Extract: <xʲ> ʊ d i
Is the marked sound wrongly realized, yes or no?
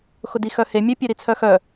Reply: yes